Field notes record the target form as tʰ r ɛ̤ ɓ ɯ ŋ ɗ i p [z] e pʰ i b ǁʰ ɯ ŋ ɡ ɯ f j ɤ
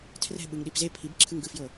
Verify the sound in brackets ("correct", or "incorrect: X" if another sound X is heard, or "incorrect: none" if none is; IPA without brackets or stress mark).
correct